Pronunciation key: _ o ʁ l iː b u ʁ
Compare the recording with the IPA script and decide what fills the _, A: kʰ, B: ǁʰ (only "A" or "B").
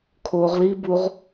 A